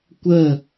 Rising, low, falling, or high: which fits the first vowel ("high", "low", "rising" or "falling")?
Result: falling